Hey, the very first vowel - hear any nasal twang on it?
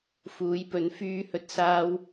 no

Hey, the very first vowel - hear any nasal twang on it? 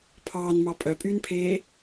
no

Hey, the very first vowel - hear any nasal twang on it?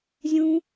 yes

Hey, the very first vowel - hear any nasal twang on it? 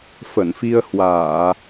no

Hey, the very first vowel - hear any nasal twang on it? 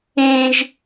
yes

